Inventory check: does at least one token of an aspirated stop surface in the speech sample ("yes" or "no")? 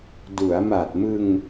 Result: no